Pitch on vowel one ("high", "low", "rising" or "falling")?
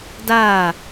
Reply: falling